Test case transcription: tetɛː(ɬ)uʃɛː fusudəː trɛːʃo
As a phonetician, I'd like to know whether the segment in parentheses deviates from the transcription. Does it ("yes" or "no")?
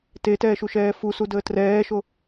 yes